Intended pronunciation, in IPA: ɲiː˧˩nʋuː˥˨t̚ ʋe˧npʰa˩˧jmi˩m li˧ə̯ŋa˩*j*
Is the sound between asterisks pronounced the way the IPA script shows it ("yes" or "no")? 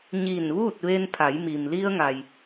yes